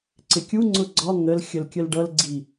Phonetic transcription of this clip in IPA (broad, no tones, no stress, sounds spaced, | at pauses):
ǀ ɪ kʲ u ŋ͡ǀ ʊ ɡ͡ǀ ɒ ŋ ə l xʲ ə l kʲ ə l ɖ ʌ l ɡ͡ǀ i